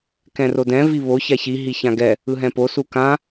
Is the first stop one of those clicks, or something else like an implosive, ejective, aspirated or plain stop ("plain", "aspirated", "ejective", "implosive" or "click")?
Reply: plain